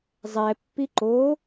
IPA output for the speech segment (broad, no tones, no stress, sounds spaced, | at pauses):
zˤ ɛ pː i ǃ o